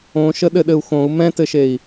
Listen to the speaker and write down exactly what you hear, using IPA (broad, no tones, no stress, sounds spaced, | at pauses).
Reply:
õ ʃ ə ɗ ɘ ɗ ɘ u̯ x õ u̯ m ɛ̃ t ɘ ʃ e i̯